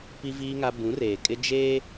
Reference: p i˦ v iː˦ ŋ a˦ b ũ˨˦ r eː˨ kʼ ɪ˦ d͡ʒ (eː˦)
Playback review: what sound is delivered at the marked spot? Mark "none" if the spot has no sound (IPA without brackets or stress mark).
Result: eː˦